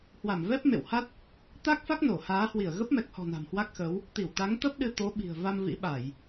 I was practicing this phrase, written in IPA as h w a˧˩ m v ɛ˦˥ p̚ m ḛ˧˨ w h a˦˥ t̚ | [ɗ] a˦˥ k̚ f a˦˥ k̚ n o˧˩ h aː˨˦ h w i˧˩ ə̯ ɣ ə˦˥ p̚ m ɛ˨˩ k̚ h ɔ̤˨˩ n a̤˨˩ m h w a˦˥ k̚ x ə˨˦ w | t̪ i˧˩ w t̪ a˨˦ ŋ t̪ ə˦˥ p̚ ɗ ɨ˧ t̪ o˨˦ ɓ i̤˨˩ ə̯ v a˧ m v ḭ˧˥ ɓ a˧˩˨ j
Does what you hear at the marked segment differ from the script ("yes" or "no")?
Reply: yes